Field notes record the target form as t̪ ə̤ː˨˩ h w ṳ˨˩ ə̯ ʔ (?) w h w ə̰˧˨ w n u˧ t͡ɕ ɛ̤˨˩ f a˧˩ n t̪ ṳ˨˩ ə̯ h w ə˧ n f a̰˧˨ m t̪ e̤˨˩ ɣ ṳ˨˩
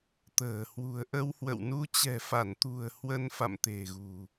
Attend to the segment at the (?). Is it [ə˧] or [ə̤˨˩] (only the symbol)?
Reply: ə˧